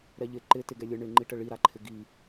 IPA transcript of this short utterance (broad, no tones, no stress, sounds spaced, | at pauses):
ɾ ɛ ʎ ɪ ǃ ɪ t ɪ ɡ ɛ lʲ ə ɳ ɪ ŋ͡ǃ i ʈ ə ɭ i ɾ a ǃʰ ɪ ɡ i